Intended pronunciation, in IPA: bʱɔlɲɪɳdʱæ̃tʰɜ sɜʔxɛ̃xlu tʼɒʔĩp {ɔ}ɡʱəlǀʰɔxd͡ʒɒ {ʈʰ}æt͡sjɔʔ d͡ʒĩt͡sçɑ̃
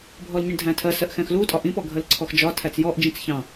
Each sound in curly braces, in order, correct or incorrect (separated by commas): correct, incorrect